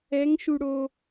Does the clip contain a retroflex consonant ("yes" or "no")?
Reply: yes